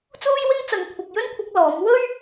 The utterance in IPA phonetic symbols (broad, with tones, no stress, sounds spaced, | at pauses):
t͡s uː˥ j w ɪ˥ ŋ t͡s ɐ˨ ŋ kʷʰ ɐ˨ k̚ j ɵ˥ n kʷʰ ɐ˧ k̚ l ɔː˨˥ m w ɵ˥ ɥ